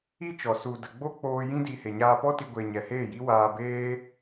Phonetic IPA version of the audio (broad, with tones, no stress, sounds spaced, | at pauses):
i˦ t͡ʃ ɔ˨ s u˨ d ə˨ ɡ͡b o˦ k͡p oː˧ j ĩ˦ d i˧ h e˨ ɲ aː˧ p ɔ˦ t i˧ ɡʷ e˨ ɲ ɛ˨ h eː˦˨ j i˦ w aː˧ b eː˦